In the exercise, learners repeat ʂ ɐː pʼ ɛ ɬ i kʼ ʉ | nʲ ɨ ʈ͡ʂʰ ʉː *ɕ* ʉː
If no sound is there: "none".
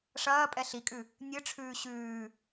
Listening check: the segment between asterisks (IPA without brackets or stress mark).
ɕ